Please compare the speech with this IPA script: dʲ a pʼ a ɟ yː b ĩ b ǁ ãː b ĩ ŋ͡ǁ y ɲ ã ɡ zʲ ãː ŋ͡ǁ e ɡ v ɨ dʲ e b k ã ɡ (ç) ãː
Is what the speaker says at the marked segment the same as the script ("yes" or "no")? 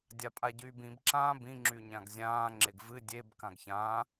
yes